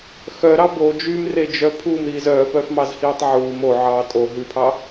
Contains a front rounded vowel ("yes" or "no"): yes